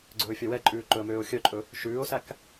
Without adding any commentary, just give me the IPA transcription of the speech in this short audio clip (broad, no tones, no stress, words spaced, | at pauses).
ɡ͡ǀɵːfʲœwɛǃʼʉː ǃɵə̯møːʊ̯xʲœǃʼɵ | ʃʉːʊ̯sæk